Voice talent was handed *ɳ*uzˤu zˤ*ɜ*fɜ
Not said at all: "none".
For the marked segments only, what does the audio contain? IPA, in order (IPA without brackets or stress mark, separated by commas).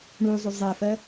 ɳ, ɛ